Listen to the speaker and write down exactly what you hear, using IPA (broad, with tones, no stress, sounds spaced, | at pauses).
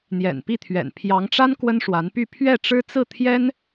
n̪ j ɛ̰˨˩ n p i˥˩ t̪ʰ ɥ ɛ̰˨˩ n pʰ j ɑ˧˥ ŋ ʈ͡ʂ a˥ n k w ə˥ n ʂ w a˧˥ n p y˥˧ pʰ ɥ ɛ˥˩ ʈ͡ʂ ɻ̩˥ t͡s ɹ̩˥˩ t̪ʰ j ɛ˥ n